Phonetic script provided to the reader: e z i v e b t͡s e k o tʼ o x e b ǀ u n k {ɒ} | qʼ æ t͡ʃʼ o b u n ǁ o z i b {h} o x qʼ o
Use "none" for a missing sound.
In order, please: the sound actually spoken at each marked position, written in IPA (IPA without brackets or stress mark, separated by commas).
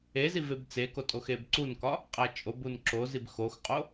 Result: ɒ, x